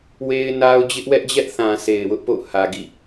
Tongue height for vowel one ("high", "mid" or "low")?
mid